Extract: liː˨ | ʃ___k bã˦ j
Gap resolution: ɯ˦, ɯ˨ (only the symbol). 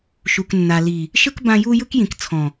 ɯ˦